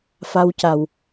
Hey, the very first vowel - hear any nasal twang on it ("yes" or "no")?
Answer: no